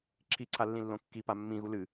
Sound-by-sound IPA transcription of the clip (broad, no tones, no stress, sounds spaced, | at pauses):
ǁʰ i ǀʰ a lː ĩ lː õ kː i p a mː ĩ ɣ u l ɨ